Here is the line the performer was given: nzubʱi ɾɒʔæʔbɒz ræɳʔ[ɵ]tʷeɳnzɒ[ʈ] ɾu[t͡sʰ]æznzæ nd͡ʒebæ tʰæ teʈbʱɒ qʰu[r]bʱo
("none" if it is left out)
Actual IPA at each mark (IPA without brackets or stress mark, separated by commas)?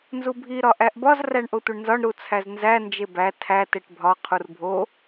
o, ɳ, t͡sʰ, r